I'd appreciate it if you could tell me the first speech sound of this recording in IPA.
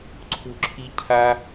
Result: ǀʰ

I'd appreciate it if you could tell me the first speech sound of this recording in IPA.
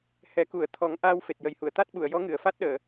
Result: h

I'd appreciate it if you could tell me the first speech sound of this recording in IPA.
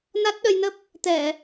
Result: n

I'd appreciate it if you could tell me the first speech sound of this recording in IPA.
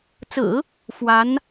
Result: t͡s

